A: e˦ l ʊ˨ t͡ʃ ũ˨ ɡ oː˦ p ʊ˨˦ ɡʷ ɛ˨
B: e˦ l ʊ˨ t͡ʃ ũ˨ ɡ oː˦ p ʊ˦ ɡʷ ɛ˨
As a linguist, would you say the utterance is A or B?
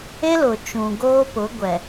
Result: A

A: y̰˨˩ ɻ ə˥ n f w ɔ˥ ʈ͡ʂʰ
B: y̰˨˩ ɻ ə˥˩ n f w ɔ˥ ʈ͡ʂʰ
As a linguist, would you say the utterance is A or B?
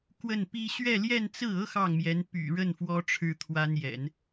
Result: B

